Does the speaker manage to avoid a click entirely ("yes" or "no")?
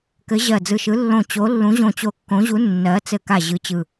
yes